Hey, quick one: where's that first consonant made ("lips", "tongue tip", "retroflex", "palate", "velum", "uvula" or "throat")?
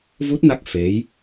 lips